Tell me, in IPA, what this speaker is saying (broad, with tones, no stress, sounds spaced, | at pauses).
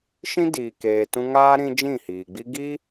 ʃ ĩ˦ d iː˨ k eː˨ t ũ˧ ŋ aː˦ ɾ ĩ˦ d͡ʒ ĩ˦˨ h iː˨ ɡ͡b i˦ ɡ i˦